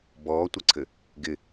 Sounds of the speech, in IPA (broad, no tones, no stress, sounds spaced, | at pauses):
b ɔː tʷ ə ǀʰ ɘ | ɡ ɪ